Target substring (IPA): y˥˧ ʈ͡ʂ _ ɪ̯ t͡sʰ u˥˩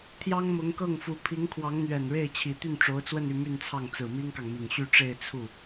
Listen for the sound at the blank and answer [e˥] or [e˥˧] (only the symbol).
e˥˧